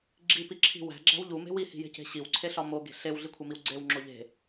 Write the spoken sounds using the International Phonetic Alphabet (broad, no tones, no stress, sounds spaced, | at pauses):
ɡ͡ǁ i p i ǁʰ i̤ w æ̤ ɡ͡ǁ æ̤ w ʎ u m e̤ w i h i̤ j e̤ c e̤ ɕ i w ǀʰ e ɬ ɒ m o ɡ e̤ ɬ e w ɮ i kʷʰ e m i w ɡ͡ǀ e w ŋ͡ǁ o ʎ e̤